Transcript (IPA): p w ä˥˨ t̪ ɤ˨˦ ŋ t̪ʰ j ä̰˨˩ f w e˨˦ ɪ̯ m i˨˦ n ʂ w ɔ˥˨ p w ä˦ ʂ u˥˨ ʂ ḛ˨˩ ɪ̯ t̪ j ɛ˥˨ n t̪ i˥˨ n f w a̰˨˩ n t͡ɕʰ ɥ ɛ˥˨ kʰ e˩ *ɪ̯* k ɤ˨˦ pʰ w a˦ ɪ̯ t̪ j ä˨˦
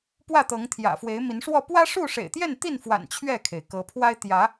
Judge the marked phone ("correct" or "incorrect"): correct